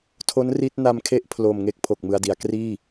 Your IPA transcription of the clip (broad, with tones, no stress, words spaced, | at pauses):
tʰo˦˥n ri˦˥t̚na˧m kʰe˥˩ʔpʰlo˨˩mŋe˥˩k̚ pʰo˨˩k̚mɯ˧a̯di˩˦a̯ kriː˥˩